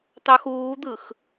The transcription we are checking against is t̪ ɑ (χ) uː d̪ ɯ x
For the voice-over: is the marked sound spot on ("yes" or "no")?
no